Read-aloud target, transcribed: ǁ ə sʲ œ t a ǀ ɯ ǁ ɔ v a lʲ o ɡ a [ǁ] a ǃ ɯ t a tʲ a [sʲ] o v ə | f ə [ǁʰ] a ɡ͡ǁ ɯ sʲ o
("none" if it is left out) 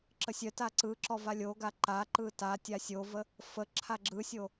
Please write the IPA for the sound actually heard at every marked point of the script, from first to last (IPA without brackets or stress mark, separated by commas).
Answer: ǃ, sʲ, ǁʰ